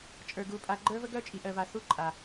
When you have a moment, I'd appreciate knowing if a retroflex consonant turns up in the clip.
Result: no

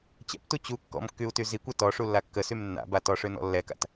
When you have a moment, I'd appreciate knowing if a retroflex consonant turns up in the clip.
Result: yes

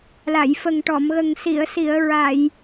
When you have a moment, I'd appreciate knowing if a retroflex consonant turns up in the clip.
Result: yes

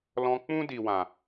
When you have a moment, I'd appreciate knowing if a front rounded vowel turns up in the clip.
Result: no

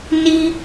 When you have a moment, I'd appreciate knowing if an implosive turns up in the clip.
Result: no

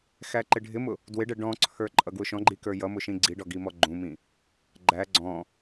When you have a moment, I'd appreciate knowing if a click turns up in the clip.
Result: yes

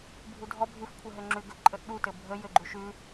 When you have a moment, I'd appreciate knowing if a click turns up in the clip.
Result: yes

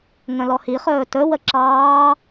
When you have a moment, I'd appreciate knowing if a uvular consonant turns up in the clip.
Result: yes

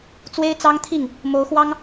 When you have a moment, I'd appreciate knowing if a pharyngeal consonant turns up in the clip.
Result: no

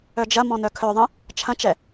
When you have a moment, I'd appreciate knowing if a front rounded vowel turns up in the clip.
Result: yes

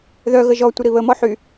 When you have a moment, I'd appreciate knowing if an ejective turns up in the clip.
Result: no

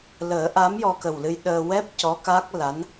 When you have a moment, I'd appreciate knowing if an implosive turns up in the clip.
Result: yes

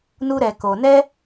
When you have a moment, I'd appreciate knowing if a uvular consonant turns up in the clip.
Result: no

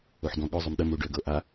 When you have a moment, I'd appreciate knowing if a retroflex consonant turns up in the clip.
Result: yes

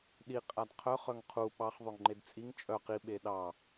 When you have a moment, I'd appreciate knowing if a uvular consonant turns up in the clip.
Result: yes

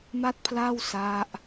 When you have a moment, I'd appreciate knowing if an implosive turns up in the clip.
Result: no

